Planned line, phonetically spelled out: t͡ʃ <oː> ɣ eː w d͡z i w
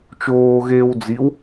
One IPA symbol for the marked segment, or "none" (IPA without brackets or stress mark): oː